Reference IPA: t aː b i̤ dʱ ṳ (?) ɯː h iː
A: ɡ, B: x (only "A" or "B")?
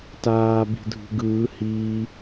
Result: A